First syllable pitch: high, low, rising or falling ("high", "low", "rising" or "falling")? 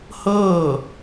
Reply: falling